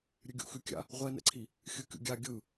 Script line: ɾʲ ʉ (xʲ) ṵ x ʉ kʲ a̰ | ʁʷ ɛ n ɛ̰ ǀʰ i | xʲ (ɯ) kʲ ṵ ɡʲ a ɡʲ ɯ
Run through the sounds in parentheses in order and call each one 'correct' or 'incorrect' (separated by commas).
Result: incorrect, correct